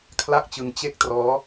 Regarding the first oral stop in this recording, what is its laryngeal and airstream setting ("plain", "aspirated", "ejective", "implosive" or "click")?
aspirated